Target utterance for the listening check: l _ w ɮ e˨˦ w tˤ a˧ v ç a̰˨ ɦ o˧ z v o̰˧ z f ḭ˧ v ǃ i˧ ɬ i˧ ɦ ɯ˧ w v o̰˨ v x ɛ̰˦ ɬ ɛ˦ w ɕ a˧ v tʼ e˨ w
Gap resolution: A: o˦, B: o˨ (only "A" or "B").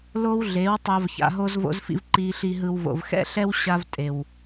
A